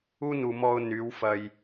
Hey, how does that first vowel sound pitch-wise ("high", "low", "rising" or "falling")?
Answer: high